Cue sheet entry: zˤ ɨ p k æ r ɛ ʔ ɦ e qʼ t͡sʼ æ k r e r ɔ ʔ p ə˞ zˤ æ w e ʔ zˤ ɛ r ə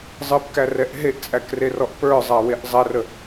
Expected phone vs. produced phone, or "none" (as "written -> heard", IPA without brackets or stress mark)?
qʼ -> ʔ